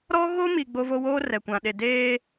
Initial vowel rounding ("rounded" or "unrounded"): rounded